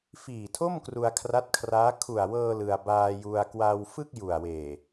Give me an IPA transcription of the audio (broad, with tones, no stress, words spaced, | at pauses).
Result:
fiː˨˩tʰo˥˩m kru˧a̯kʰra˦˥t̚kʰraː˦˥ kʰu˨˩a̯wɤː˧ lɯ˧a̯ baː˧ju˧a̯ kwa˧wfɯ˥˩k̚ ju˨˩a̯weː˨˩